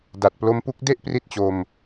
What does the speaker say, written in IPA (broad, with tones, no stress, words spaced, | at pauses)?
da˨˩t̚plo˧mpu˦˥k̚ de˥˩ʔpri˦˥t̚t͡ɕo˧m